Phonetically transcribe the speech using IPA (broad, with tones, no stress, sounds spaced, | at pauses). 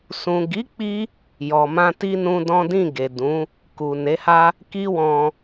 s ũ˨ ɡ i˨˦ k͡p i˧ | j ɔ˨ m ã˧ t i˦ n ũ˦ d ɔ̃˦ d ĩ˦˨ ɡ e˨ d ũ˨˦ | k u˨ n e˨˦ h a˦ | k i˦ w ɔ̃˧